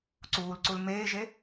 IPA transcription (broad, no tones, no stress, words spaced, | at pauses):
ǀuːlǀul meːʒe